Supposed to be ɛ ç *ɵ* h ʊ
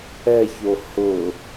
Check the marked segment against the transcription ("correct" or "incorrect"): incorrect